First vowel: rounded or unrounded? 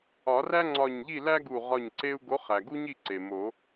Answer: rounded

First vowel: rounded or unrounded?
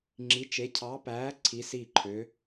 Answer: unrounded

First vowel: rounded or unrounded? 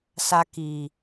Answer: unrounded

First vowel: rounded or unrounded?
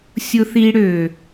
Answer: rounded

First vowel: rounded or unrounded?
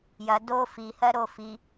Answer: unrounded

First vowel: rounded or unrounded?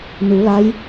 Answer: rounded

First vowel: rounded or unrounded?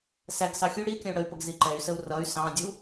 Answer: unrounded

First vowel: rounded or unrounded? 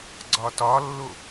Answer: rounded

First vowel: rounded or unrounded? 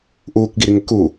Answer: rounded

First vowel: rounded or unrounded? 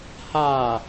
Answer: unrounded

